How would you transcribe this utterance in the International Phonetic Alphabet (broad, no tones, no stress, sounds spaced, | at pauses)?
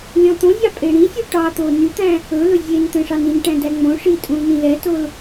lʲ ɔ̃ t̪ õ zʲ ɑ pʼ e ɽ ĩ sʲ u ʈ ɑ t̪ o n y t̪ æ̃ | ɵ l ɵ zʲ e n t̪ ɛ̃ ʂ ɑ n ĩ n ʈ æ̃ d æ ŋ͡m õ ʂ i tʼ ũ l n ĩ l ɛ t o l